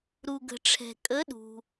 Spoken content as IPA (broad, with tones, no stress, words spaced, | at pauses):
ɾu˨ɡə̤˨ʈ͡ʂʰɛ̤˨ kʼə˧˥ɗṳ˨